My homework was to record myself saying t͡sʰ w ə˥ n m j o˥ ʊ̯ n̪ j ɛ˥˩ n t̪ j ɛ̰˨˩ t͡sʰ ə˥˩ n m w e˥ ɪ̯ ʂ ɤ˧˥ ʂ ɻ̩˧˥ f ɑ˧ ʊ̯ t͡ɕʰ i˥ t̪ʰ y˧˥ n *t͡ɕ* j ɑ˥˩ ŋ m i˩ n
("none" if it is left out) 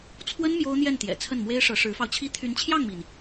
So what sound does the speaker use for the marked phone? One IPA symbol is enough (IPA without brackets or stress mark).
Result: t͡ɕʰ